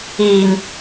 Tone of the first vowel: low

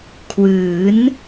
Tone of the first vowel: rising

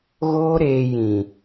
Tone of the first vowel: high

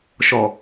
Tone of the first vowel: low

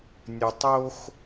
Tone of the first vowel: low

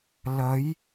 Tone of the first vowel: rising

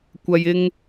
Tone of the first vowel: low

